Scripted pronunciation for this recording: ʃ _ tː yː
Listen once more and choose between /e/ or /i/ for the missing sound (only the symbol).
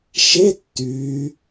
e